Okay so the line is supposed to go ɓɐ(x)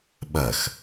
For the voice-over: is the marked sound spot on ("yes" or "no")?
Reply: yes